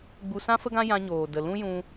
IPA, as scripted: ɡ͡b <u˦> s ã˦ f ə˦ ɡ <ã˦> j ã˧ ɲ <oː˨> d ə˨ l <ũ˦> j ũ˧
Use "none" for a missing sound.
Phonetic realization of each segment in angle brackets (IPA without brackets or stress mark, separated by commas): u˧, ã˦, oː˨, ũ˦